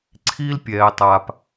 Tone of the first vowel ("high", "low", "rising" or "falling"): high